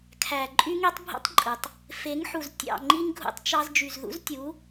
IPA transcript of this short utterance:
kʰæ˨ ǃʼy˦ŋi˦tˤbʱṵ˦tˤǃʼɯ˨tˤ | fe˨˦ŋ ħu˨z tʲɑ̰˦˨ ŋ͡ǃi˦ŋɡʱṵ˦˨tˤt͡ʃɑ˦z d͡ʒy˨zðṵ˦ztʲu˨˦

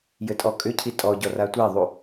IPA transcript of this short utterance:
jɘtʼɔkʼʏcʰi tʼɔɟɔ ratʷeðˤu

